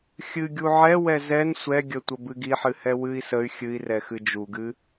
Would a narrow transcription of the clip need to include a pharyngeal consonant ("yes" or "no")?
yes